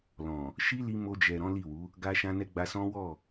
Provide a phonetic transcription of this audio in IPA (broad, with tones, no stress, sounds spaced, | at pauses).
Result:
l ɔ̃˨ | ʃ i˦ l i˧ m o˧ d͡ʒ ɛ˨ ɾ ɔ̃˨˦ l i˦˨ w u˨˦ | ɡ a˧ ʃ ã˧ n ɛ˧ ɡ͡b a˧ s ɔ̃˦ w ɔ˦˨